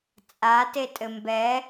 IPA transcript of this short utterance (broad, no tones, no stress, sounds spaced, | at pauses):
t͡sʼ a t e tʼ ɘ m b ɛ